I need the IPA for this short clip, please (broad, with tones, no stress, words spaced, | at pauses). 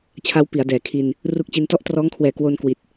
t͡ɕʰa˦˥wpi˩˦a̯dɛː˩˦ kʰi˧n | ru˦˥k̚t͡ɕi˧n tɔ˦˥ʔtrɔː˦˥ŋkʰwɛː˩˦ kwo˧nkwi˨˩t̚